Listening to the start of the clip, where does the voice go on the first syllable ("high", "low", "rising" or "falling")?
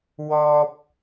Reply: low